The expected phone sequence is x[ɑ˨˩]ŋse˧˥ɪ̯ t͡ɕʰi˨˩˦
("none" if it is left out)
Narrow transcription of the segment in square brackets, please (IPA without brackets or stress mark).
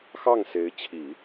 ɑ˥˩